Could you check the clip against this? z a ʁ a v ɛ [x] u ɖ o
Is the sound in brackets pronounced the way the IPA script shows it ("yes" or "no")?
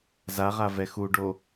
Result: yes